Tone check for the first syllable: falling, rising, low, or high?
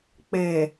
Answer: low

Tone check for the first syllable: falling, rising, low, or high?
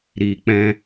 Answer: low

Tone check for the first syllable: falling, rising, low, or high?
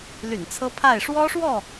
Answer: low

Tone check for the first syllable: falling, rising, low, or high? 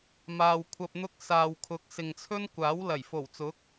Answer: low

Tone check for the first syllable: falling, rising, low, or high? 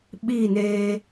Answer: falling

